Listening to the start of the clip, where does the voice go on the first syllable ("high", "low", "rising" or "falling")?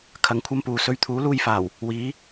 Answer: rising